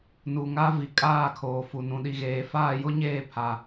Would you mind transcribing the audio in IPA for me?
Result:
n u˨ ŋ a˦ v i˨ kʼ aː˦˨ kʰ oː˨ f u˨ n ũ˦ ɗ i˦ ɣ eː˦ f aː˦˨ j ʊ˦ ɲ eː˦˨ pʰ a˦

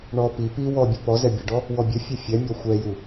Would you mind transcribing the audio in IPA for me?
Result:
ɳ ɔ p i p i w ɔ bʲ u p ɔ z ɛ bʲ ɘ ɖ ɔ | w ɔ bʲ ɘ fʲ ɛ fʲ ɛ mʲ ɔ xʷ ɛ j u

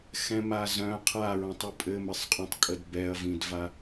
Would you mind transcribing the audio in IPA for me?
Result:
x ɛ̃ m a z œ̃ qʰ a ɹ ɔ̃ tˤ u pʼ ɘ m ɘ sˤ qʼ œ̃ tˤ kʼ ə d b ɛ ɐ̯ v ĩ d v a

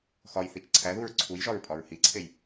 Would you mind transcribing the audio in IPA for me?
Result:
x ɒ j θ i t͡ʃ ǀʰ æ ð u ɹ ǀʰ u j ʒ ɒ ɹ pʼ ɒ ɹ h i ǀʰ e j

